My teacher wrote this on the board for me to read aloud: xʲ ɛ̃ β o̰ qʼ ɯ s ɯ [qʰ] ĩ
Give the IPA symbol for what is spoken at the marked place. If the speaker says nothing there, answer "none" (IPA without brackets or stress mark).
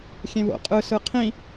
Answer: qʰ